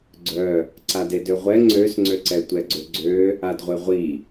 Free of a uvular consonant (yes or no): no